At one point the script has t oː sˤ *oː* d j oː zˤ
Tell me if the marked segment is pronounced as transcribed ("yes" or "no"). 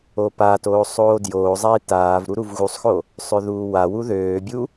yes